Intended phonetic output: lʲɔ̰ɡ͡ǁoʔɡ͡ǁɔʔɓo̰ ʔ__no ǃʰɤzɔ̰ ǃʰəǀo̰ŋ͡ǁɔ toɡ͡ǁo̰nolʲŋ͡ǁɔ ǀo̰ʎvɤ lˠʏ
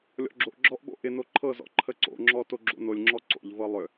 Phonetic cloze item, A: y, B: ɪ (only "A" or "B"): B